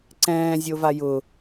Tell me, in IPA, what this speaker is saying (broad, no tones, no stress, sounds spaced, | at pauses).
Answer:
ǀ ɛ̃ː zʲ o v a j ʊ